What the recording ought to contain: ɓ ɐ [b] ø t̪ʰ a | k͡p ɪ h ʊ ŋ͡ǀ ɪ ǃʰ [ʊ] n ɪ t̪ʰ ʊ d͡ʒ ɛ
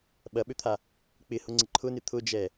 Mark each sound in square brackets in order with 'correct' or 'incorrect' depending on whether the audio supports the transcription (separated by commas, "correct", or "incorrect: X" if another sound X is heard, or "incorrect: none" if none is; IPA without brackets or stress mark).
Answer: incorrect: ɓ, correct